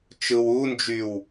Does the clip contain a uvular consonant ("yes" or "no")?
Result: no